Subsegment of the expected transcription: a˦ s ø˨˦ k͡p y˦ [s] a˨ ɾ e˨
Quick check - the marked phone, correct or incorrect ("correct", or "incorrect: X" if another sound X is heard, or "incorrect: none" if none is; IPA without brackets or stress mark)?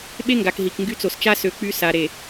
correct